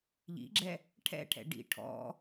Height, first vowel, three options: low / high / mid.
high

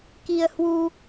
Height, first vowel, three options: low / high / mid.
high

